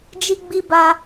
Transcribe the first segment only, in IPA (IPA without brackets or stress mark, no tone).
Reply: d͡ʒ